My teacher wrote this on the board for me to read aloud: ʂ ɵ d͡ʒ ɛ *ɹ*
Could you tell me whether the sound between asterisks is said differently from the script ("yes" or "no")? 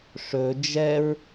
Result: no